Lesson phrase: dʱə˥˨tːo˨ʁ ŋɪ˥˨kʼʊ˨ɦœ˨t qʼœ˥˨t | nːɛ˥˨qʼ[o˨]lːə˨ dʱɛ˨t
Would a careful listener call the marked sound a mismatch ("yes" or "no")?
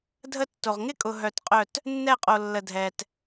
no